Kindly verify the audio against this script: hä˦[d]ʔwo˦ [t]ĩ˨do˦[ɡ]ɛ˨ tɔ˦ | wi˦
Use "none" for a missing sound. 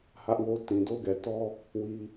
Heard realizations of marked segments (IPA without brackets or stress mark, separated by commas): none, t, ɡ